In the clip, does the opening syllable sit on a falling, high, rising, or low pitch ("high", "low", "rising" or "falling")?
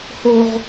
high